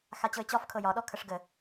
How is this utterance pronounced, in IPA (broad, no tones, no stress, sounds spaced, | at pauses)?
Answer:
x a t͡ɕ ɤ ɪ̯ t͡ɕ ɒ f kʰ ɤ j ɒ ɗ ɔ kʰ ə ʂ ɡ ə